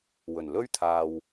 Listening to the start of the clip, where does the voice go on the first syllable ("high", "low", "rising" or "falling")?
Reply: low